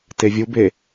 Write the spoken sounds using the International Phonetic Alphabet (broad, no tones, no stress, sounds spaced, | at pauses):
t e vʲ u b e